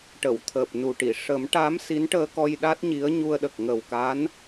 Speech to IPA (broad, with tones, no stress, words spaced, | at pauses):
ʈə˨˩˨wt̪ʰəː˨˩p̚nu˨˩ʈi˨˩˨ ʂə˨˩˦mʈa˧˥m si˧˥nʈəː˧kɔ˧j ɗa˦˥t̚ɲi˧˥ə̯ɲu˧ə̯ɗə˨˩k̚ ŋə˨˩wka˧˥n